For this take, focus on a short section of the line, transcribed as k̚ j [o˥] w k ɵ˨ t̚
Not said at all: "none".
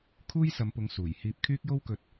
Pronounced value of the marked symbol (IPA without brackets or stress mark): o˥